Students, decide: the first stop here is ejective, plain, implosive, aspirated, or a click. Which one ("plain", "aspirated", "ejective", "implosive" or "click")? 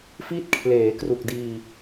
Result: plain